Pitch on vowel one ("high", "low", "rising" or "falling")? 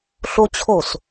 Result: high